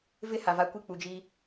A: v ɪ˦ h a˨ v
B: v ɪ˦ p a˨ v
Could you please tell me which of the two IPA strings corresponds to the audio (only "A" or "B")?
A